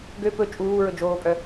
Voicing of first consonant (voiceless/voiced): voiced